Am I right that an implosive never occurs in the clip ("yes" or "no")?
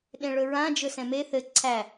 no